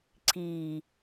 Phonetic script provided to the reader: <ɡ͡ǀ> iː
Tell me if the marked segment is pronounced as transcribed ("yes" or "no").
no